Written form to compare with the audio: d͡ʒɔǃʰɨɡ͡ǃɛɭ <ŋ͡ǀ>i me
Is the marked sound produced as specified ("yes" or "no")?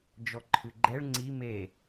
yes